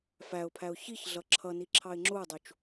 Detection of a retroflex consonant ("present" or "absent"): absent